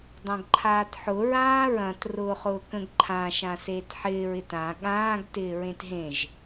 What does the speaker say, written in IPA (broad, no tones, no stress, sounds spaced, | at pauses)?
dˤ ɐ̃ ɡ ǃʰ aː t ħ ʊ ɹ ãː ɹ ɐ̃ t r ʊː χ ʊː k ə̃ ɡ ǃʰ ã ʃ ã s eː t ħ ɪː ɹ ɪ t ã ɠ ãː ɡ t ɪː ɹ ẽ t ɦ ẽ ʒ